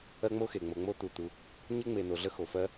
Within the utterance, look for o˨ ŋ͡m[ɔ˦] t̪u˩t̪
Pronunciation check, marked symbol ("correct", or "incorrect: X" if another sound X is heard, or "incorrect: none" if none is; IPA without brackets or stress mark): incorrect: o˦